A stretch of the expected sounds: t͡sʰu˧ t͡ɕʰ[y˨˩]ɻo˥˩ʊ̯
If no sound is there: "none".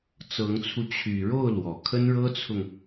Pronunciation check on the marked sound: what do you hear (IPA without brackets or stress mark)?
y˨˩